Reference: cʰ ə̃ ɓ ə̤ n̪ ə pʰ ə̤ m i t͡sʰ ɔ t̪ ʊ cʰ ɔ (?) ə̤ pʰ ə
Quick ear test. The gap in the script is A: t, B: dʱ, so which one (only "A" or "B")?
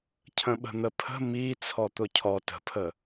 A